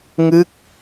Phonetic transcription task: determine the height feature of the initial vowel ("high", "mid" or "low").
high